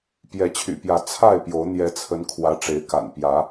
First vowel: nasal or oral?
oral